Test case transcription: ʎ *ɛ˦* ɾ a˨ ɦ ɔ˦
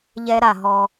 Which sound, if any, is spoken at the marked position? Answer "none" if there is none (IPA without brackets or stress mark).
ɛ˦